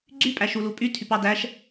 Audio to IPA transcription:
ɡ͡ǀ y pʼ æ ʃ u l u pʼ y tʰ y p ɑ d æ ʃ

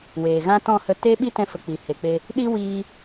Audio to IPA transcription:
w eː˨ ɣ ã˦ t ɔ̃˦˨ h ə˧ t e˦ ɓ i˦ t ɛ̃˧ f ə˨ k͡p i˨ h e˨ k͡p e˧ | ɗ i˦ w iː˧

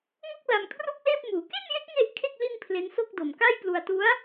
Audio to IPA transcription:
ŋ o˥˩ k̚ l a˧ m kʰ r u˥˩ k̚ l eː˥˩ p̚ m uː˩˦ k e˥˩ n j e˦˥ k̚ ŋ e˥˩ ʔ kʰ e˥˩ k̚ l i˥˩ n pʰ l e˦˥ n s o˥˩ k̚ d o˨˩ m k a˥˩ j p l u˧ a̯ t u˦˥ a̯

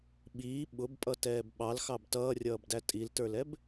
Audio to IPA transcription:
ɓ iː ɓ ʊ b pʼ ʌ t ɛː b ɓ ɑ l x ɑ b t ʌː rʲ ʌː b d æ tʼ i l t ə˞ l ɛ b

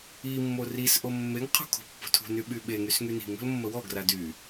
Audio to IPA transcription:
i mː o r i s ʔ o mː e ŋ qʰ ṳ kʰ o̤ pː o̤ tʰ ṳ n y ɓ y ɓ e ŋ y s ŋ y n i̤ ŋ o̤ l mː ə w ɔ ɡ r a d y

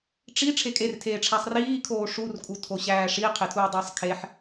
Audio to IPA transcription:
ʈ͡ʂ i ʈ͡ʂʰ e kʼ e r tʰ eː ʈ͡ʂʰ æ sˤ r iː kʰ oː ʂ u r kʼ u tʰ o ɕ æː ʂ i qʰ e tʰ uː dˤ iː sˤ kʰ e ħ

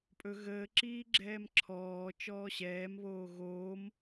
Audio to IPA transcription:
pʼ ɵ ɣ əː ǁ iː ɡ͡ǁ ɛː m ǁʰ ɔː t͡ʃ ɔː ɕ ɛː m β oː ɣ oː m

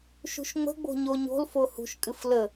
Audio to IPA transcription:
ʃ ṳ ʃ ŋ͡m ə̤ ɡ͡b o̤ ɲ o ɲ o̤ l f o h ṳ ʃ kʼ ɨ f l ə

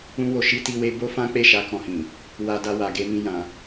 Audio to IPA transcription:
ũ˧ w o˨ ʃ i˧ t i˧ w e˧ b o˦ f ã˦ k͡p e˦˨ ʃ a˧ k ɔ̃˧ h ĩ˨ | w a˧ d a˧ w a˨ ɡ e˧ m ĩ˧ j ã˧

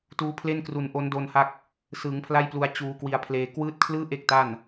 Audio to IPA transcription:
t uː˦˥ pʰ l e˥˩ n k r u˧ n ʔ o˦˥ n d o˧ n h a˦˥ k̚ | s ɯː˩˦ ŋ pʰ l a˥˩ j p l u˧ a̯ t͡ɕ uː˧ k w i˧ a̯ pʰ l eː˧ k w ɯː˦˥ t̚ kʰ l ɯː˥˩ ʔ e˥˩ k̚ t a˥˩ n

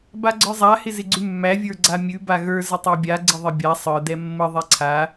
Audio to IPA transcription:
b a ɡ͡ǀ ə˞ zˤ a h ɪ z ɪ ɡ͡ǀ ʉ mː æ vʲ ə˞ ɡ͡ǀ a mʲ ʉ b a ɣ ə˞ z ə tˤ æ bʲ a ɡ͡ǀ ɪ ðˤ ɪ bʲ a sˤ ə˞ d ɛ mː ə ðˤ ɛ ǀʰ a

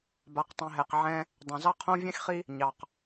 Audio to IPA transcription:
b a˨ q tˤ ĩ˨ ɦ ɛ˨ q ʕ ɛ̃˦ | dˤ ɛ̃˨ z ɑ˦ qʰ õ˦ vʲ ɛ̃˦ x χ i˦ | ɲ ɑ˨ q

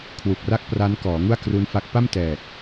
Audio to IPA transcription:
kʰ w u˨˩ k̚ r a˥˩ k̚ p r a˦˥ n k ɔː˩˦ ŋ u˥˩ a̯ k r u˦˥ n f a˦˥ k̚ p a˥˩ m t ɛː˨˩ k̚

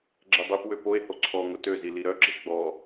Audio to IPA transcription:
ɡ͡ǁ ɛ dˤ i p w ø p o e̯ h o ǀʰ ɔ ŋ ʊ t ø z i l i ɾ œ ɡ͡ǁ e ɡ͡b ɔ

